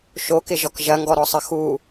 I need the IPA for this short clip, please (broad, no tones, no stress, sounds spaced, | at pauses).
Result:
ʃ o k ɪ ʒ ɔ k ʒ ɐ ŋ ɡ ɔ ɾ ɔ sˤ ə x u